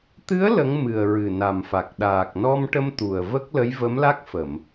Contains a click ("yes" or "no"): no